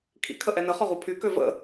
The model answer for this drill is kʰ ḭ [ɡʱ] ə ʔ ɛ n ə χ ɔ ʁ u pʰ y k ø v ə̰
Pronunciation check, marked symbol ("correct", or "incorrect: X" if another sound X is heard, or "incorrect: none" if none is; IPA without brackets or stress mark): incorrect: kʰ